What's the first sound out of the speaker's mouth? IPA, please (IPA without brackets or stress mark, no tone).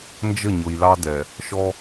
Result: n